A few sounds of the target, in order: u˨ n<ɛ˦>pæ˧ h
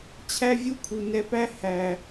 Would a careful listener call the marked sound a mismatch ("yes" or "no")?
yes